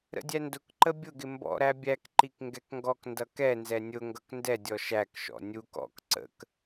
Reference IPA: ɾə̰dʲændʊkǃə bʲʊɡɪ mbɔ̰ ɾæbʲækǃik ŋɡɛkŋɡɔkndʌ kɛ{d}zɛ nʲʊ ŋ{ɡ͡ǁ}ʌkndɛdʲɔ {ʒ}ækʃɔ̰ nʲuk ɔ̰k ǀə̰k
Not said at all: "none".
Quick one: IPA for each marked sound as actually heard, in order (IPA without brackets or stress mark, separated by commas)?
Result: n, ɡ, ʃ